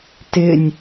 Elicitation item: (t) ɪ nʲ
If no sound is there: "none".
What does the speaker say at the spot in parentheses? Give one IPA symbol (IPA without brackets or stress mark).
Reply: t